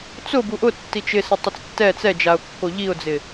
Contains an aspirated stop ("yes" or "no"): no